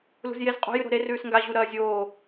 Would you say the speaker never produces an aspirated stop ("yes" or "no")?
yes